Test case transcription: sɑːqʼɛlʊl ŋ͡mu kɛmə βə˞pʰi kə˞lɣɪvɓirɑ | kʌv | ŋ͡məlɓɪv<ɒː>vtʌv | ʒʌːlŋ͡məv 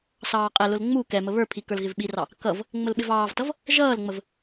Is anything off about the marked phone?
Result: yes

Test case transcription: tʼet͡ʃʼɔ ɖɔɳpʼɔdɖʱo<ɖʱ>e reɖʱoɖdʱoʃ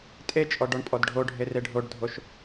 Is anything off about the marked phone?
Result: no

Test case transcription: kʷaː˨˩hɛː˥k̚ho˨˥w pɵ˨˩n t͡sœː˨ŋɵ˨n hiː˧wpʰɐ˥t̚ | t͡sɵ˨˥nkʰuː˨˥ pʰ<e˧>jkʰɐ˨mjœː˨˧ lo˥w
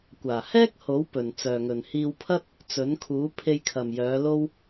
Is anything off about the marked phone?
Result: no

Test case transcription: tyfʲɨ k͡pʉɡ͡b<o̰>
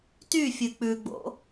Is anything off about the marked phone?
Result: no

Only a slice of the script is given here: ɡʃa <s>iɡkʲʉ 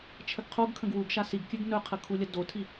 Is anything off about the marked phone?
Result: no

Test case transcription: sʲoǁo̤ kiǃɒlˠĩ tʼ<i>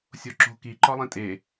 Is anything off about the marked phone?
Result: yes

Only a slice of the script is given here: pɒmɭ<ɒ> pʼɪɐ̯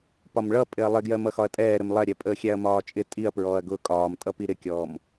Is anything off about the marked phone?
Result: yes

